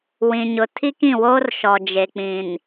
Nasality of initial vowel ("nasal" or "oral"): nasal